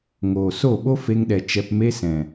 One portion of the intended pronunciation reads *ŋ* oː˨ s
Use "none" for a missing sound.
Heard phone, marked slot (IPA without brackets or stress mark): ŋ